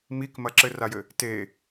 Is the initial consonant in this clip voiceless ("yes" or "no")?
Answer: no